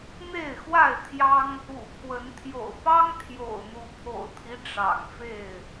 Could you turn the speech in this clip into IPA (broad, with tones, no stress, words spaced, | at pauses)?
n̪e˥˨ɪ̯xwa˥˨ɪ̯t̪ʰjɑ˦ŋ | ṵ˨˩pʰwə˨˦n t̪ʰjo̰˨˩ʊ̯pɑ˦ŋ t̪ʰjo̰˨˩ʊ̯n̪u˨˦pʰo̰˨˩ʊ̯t̪ʰi˦ ʈ͡ʂɑ̰˨˩ŋfe˥˨ɪ̯